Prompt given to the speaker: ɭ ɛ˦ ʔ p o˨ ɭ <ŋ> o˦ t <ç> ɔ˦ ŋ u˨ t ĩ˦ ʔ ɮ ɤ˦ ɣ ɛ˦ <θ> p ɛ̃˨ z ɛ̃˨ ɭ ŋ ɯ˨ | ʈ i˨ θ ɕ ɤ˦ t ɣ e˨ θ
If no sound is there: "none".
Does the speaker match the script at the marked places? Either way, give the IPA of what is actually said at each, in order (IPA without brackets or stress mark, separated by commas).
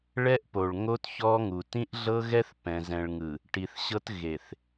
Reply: ŋ, ç, θ